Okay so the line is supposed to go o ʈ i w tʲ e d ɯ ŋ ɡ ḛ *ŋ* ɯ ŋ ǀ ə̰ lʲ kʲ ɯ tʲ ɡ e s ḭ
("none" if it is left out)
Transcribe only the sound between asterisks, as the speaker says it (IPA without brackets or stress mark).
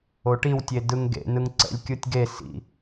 n